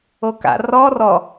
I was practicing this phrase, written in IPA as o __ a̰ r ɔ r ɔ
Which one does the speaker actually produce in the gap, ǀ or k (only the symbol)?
k